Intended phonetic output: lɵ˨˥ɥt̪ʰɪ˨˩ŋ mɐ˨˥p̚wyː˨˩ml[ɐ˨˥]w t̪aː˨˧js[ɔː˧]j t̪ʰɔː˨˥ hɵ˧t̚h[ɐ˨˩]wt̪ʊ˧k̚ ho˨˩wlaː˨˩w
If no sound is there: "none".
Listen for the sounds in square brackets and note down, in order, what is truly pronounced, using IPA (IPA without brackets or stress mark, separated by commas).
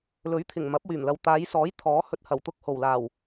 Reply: ɐ˨, ɔː˨˥, ɐ˨˩